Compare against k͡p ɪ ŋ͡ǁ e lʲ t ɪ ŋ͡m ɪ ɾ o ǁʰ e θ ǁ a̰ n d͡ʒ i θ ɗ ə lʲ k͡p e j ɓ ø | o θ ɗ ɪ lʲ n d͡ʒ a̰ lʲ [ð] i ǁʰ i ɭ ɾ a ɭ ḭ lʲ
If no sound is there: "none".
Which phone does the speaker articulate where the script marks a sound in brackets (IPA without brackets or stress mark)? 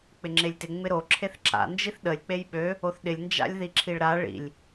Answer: ð